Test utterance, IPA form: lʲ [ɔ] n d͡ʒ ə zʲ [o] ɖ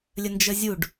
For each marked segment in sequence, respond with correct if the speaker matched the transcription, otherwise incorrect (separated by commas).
incorrect, incorrect